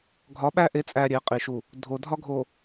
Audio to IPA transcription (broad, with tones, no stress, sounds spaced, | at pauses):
ɡʱ ɒ˨˦ ɓ æ˦ ʔ e˨˦ t͡sʼ æ˨ ɾʲ e˨˦ qʼ i˨ ʃ u˨ | dʱ o˨ dʱ ɒ˦ ɡʱ o˨